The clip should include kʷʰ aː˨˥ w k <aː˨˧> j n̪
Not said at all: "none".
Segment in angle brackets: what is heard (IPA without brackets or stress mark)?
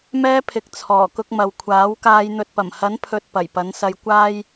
aː˨˧